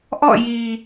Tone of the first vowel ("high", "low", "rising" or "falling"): falling